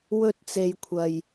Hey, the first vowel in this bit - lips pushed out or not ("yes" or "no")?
yes